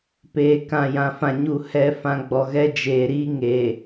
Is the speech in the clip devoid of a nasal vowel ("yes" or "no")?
no